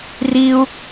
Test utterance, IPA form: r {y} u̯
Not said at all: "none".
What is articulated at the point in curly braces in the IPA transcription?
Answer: i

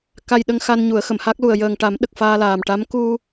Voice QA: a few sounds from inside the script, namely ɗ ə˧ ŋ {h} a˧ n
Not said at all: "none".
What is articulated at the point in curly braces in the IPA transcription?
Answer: x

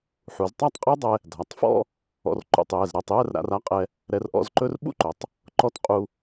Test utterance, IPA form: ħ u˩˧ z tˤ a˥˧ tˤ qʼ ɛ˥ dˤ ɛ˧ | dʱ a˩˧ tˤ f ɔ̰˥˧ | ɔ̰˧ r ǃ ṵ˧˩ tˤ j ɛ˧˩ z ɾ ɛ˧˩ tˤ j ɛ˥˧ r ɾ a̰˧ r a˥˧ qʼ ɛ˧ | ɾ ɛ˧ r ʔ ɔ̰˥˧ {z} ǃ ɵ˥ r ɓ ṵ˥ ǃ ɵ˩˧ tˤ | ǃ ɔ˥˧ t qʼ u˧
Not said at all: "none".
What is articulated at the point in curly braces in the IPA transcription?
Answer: z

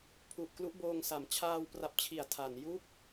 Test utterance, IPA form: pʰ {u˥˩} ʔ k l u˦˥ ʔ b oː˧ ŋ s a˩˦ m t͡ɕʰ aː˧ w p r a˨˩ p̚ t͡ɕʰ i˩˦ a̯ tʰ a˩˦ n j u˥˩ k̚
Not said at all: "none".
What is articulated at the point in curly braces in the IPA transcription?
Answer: u˨˩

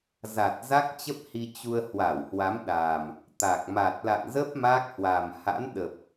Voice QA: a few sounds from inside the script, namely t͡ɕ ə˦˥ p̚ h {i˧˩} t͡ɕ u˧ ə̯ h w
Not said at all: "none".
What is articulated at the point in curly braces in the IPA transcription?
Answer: i˧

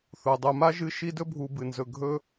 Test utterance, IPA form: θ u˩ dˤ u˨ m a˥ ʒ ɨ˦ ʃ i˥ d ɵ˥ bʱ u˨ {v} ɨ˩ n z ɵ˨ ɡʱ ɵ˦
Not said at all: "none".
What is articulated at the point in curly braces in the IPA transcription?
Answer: b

